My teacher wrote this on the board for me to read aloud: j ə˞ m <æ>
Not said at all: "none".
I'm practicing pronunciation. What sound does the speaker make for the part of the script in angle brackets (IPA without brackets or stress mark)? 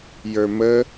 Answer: ə